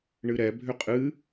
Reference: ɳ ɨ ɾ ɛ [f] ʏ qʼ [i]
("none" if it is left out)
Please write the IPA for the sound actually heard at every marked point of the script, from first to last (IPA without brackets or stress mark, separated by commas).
bʱ, ɨ